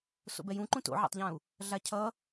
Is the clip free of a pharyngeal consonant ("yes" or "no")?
no